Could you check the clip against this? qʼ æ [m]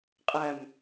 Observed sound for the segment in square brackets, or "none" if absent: m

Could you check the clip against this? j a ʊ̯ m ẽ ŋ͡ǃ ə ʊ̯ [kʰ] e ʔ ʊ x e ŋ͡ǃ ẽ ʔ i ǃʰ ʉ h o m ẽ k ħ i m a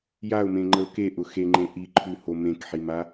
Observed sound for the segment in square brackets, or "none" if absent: k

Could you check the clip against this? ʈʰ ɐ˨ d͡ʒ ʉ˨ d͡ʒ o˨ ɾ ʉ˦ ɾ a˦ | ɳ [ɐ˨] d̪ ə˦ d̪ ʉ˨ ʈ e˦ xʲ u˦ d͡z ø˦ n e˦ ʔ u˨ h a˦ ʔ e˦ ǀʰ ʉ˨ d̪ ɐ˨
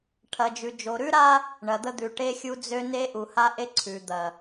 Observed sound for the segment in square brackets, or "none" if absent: ɐ˨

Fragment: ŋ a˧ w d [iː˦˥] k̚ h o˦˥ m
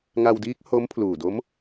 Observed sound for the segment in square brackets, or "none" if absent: iː˦˥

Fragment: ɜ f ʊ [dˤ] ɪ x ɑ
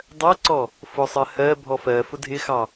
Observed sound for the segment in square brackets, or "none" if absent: dʱ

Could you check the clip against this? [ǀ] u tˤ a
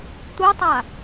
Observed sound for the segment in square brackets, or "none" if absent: t̪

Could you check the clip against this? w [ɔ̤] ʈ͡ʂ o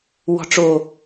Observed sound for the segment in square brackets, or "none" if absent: ɔ̤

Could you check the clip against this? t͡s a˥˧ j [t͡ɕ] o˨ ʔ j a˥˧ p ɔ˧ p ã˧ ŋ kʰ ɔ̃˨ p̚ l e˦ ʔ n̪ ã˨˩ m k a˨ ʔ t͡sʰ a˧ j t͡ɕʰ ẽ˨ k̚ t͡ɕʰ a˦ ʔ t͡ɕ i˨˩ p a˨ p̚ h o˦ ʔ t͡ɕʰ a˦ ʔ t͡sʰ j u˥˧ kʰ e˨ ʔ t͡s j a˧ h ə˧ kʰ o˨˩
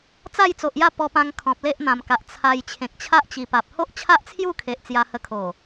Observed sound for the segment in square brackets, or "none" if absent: t͡s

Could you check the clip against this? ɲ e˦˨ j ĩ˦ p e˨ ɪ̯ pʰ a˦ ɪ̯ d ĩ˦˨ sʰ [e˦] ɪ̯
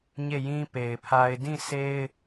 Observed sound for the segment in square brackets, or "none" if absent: e˦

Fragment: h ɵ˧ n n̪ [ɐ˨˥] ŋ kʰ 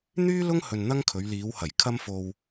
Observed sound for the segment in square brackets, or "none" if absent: ɐ˥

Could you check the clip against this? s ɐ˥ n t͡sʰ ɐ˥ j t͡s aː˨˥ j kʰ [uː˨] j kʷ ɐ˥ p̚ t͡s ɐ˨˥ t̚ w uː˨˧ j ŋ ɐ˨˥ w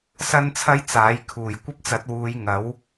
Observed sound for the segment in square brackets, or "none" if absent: uː˨˩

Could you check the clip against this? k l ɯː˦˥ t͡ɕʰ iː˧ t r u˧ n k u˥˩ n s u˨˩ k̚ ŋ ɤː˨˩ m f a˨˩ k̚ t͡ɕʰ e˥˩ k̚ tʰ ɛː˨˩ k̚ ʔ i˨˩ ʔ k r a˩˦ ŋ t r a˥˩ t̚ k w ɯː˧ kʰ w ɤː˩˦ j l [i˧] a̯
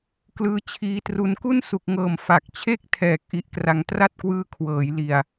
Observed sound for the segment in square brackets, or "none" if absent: i˨˩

